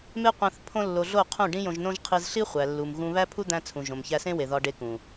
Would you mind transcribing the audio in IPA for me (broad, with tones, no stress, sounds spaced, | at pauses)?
m e˦ qʷ æ̃˧ θ pʰ õ˦ lː o˧ ɮ o˦˨ qʰ ũ˦˨ ɖ ĩ˦ j õ˧ ʒ n õ˦ ʒ qʰ i˧ z ɬ i˦ χʷ æ˨ lː u˨ m ɣ ũ˧ β æ˦ pʰ u˦ d̪ æ̃˧ t͡sʰ ũ˨ ʒ õ˨ m ç æ˧ s ẽ˦ w e˨ ð ɒ˧ ɖ e˧ k ũ˨